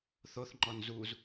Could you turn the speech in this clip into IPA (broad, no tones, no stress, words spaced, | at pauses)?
θoθŋ͡ǃɔn zuz